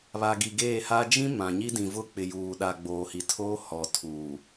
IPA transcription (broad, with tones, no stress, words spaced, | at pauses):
βa˨ɡi˨ɡeː˦˨ha˦ d͡ʒĩ˦ mã˨ɲi˦dĩ˨vʊ˦ k͡pɪ˨juː˨ɗa˨ɡ͡boː˨ hi˨tʰoː˦ hɔ˨tʰuː˨